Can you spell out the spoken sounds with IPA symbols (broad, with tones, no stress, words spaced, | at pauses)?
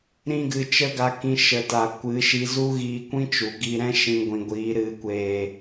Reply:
ɾĩ˦ɡɨ˧ t͡ʃə˦ɡa˧ kĩ˧ ʃə˨ta˨ kʷɨ˨˦ʃi˧ zu˦ɣiː˧kʷĩ˦ t͡ʃu˨ɡi˧ ɾɛ̃˦ ʃĩ˧ɡʷĩ˨ɡʷiː˨˦ ɾɨ˨kʷeː˨